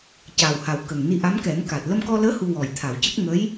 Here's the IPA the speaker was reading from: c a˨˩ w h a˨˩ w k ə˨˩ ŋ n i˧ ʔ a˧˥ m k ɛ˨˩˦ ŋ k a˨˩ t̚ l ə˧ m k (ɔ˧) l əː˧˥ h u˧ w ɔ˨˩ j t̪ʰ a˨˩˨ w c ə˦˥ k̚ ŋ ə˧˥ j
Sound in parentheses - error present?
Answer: no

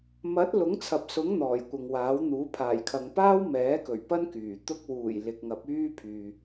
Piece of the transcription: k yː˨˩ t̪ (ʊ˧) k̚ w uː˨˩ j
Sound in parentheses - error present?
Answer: no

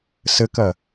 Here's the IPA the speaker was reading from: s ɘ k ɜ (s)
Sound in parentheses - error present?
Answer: yes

